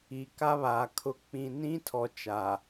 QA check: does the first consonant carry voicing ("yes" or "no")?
no